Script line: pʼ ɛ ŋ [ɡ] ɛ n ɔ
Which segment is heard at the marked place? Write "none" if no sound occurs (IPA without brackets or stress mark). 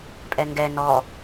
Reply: ɡ